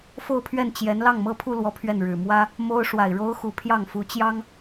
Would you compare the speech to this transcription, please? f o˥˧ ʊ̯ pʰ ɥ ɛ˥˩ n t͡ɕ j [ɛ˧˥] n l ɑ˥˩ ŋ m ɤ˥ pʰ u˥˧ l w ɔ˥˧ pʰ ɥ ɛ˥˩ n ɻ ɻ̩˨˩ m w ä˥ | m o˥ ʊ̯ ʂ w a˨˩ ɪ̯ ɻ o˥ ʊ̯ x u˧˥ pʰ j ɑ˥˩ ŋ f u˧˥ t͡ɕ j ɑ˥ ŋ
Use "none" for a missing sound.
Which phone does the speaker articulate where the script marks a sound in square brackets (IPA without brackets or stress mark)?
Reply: ɛ˧˥